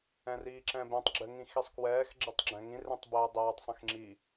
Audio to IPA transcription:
ɛ̃ r iː ǁ ɛ̃ b ɛ̃ tˤ ɡ͡ǁ ɘ ŋ ĩ x i sˤ k w ɛː x ɡ͡ǁ e tˤ ɡ͡ǁ ɛ̃ ŋ ĩ r ẽ tˤ b ɛː dˤ ɛː tˤ sˤ ĩ x ŋ͡ǁ i

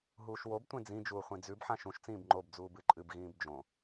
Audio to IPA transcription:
ɦ uː ʃ w o b tʷ ẽ d͡z ĩ d͡ʒ uː χʷ ĩ d͡z ʉ b ħ ã ʃ ũ ʃ t͡s ĩː b ŋ͡ǃ o b d͡z uː b ɨ ǃʼ ɨ b ɣ ĩː b d͡ʒ õ

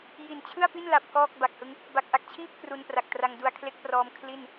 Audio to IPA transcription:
j i˨˩ n t͡ɕʰ ɯ˥˩ a̯ p i˥˩ n l a˨˩ p̚ k ɔː˥˩ k̚ b a˨˩ k̚ h ɯ˦˥ ŋ | b a˨˩ k̚ ʔ a˨˩ k̚ t͡ɕʰ iː˥˩ p̚ k r u˧ n p r a˨˩ k̚ t r a˧ ŋ d u˧ a̯ kʰ l e˦˥ k̚ p r ɔː˧ m kʰ l i˥˩ n

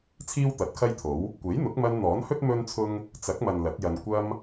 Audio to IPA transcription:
t͡sʰ iː˥ w t̪ ɐ˨˥ t̚ kʰ ɐ˥ j t̪ʰ o˨˥ w | kʷ e˨˥ j n̪ ʊ˨˥ k̚ m ɐ˧ n n̪ ɔː˨˥ n h ɵ˥ t̚ m ɵ˥ n t͡sʰ ʊ˥ ŋ | t͡s ɐ˨˥ k̚ m ɐ˨ n l ɐ˨˥ t̚ j ɐ˧ n kʷ ɐ˧ m

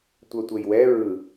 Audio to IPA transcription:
tʷ œ tʷ e j w ɛ ɹ ɯ

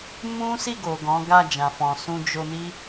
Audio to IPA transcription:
m ũ˦ s i˦˨ ɡ o˨ ɡ ɔ̃˨˦ ɡ a˦˨ d͡ʒ ã˨ f ɔ̃˨ s ũ˧ d͡ʒ o˧ n i˦

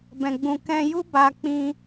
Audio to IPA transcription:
b ɛ̃˨ ɡ͡b ũ˨ k ɛ̃˧ j u˦ b a˧ k͡p ĩ˧

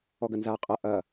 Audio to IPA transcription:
ɔ ɡ ɐ n z a qʼ ɐ ʔ ɐ

